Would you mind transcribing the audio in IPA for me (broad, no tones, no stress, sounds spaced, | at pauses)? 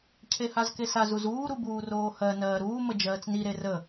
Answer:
cʰ e h a z k e s a z u z uː ɾ u b uː r oː h ɜ n ɜː ɾ uː m ə d͡ʒ ɜː t͡s n i ɾ e r ə